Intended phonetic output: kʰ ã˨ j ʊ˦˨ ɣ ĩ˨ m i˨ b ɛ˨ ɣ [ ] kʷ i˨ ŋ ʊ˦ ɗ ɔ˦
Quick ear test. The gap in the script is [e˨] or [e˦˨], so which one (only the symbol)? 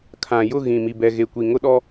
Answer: e˨